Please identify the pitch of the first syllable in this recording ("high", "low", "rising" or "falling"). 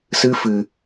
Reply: high